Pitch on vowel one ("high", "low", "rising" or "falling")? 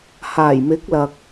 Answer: low